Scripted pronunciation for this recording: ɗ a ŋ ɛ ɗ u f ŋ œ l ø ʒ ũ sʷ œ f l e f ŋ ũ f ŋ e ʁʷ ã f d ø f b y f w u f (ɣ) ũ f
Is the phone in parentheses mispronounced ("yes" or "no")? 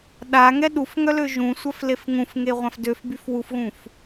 no